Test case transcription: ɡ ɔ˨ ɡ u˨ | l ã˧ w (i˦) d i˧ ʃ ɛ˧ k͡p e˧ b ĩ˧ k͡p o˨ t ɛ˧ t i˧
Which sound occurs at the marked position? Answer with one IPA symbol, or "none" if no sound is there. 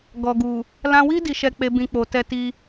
i˦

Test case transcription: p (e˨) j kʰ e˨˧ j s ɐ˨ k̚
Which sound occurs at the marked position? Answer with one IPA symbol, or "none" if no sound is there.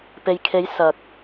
e˨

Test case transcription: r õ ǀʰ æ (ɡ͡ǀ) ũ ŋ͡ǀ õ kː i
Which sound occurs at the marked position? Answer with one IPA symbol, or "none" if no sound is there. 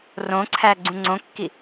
ɡ͡ǀ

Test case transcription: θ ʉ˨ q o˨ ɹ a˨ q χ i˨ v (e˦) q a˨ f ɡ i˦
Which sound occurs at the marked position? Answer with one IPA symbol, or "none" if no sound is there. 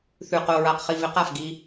e˨˦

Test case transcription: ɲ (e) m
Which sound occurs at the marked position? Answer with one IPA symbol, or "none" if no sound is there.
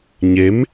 e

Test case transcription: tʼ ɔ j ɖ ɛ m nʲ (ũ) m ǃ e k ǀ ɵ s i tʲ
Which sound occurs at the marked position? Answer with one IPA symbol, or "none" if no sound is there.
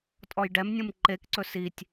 ũ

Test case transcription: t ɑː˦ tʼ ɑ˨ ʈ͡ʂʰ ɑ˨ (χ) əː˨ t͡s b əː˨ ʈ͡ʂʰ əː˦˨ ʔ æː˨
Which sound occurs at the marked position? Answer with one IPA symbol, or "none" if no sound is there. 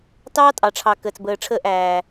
k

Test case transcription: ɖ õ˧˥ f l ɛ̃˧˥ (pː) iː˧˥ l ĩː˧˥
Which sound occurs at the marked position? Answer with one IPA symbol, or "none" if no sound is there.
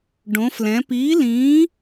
p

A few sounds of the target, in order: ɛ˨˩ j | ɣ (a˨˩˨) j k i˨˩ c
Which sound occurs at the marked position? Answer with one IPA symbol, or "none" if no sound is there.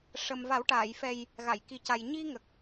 a˨˩˨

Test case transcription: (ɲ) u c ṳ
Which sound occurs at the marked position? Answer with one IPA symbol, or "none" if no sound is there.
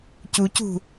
c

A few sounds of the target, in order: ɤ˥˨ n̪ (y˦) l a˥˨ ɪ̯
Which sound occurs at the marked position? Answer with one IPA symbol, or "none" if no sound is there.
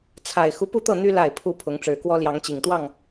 y˦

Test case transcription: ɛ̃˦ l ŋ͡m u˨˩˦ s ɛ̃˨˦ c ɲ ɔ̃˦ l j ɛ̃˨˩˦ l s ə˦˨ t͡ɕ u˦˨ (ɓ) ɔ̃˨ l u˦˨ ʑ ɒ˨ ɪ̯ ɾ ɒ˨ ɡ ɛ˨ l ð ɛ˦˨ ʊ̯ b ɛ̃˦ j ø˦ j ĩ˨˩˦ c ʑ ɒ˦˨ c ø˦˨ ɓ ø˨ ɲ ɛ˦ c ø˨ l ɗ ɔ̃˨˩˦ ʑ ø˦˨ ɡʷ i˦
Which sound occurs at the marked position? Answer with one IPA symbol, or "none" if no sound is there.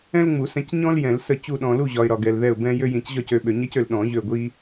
ɗ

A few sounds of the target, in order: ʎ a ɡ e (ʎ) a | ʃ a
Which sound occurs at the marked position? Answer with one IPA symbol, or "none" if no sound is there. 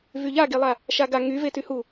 lˠ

